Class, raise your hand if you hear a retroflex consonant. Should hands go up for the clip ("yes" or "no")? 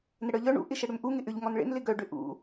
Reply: yes